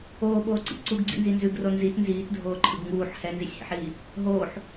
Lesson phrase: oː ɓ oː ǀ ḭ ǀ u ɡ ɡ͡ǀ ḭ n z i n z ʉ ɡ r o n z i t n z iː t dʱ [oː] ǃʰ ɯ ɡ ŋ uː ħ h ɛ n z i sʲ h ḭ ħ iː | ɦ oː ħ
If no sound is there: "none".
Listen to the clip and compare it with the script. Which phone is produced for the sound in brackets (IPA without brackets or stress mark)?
oː